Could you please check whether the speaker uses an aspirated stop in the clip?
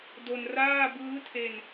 yes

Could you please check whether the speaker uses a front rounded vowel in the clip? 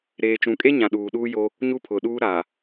no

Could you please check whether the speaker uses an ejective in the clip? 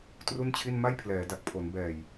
no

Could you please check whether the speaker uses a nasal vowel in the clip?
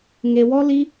no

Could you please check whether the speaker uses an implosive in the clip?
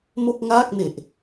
no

